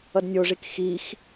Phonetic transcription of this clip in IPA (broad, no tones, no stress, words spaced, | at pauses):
ʌdnʲoʐik xix